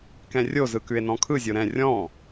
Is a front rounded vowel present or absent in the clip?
absent